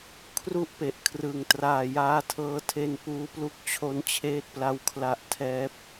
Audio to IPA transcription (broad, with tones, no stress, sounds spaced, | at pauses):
kʰ r u˥˩ ʔ p e˨˩ ʔ kʰ r ɯ˨˩ ŋ t r aː˨˩ j aː˧ tʰ ɤː˧ tʰ e˧ n p uː˦˥ p l u˦˥ k̚ t͡ɕʰ o˦˥ n t͡ɕʰ eː˦˥ t̚ p l a˦˥ w kʰ l a˦˥ ʔ tʰ ɛː˦˥ p̚